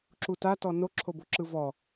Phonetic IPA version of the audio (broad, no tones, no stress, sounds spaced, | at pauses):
ǁ u t a t ɔ n o ǁʰ o b o ǁ ɯ v ɔ